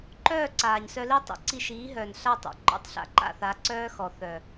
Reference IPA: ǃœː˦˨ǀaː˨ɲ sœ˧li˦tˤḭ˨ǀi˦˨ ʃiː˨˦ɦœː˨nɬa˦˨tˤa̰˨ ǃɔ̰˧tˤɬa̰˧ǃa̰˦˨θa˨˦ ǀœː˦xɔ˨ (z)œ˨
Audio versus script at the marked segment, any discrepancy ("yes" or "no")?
yes